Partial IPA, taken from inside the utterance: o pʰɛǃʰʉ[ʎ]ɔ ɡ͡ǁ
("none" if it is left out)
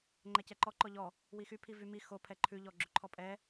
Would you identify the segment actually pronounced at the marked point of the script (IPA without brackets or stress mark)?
ʎ